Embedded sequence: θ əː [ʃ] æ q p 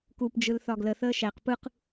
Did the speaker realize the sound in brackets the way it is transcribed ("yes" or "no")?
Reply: yes